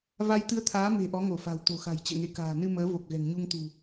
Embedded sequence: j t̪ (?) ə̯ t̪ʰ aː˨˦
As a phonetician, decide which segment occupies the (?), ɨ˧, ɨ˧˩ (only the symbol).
ɨ˧